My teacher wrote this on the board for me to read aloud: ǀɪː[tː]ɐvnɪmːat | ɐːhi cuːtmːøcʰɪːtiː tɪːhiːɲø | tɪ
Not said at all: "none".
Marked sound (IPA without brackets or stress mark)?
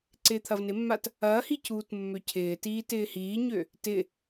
t̪ʰ